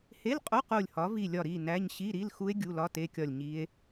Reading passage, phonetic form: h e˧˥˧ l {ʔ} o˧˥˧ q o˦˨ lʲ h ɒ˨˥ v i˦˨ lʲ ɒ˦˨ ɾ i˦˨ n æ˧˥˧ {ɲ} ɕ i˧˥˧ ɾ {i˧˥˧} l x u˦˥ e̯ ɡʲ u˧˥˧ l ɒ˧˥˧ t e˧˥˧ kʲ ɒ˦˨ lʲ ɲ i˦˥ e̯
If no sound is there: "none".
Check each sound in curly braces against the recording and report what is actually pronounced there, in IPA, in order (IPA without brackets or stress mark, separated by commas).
qʼ, ɲ, i˧˥˧